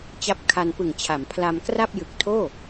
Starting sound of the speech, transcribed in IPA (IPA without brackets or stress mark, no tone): t͡ɕ